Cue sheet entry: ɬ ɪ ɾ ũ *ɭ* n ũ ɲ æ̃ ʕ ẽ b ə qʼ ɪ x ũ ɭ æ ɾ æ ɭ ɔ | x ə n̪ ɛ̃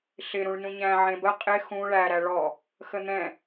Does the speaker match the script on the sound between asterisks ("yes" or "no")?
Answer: yes